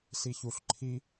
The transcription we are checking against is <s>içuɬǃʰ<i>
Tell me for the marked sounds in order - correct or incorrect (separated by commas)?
correct, correct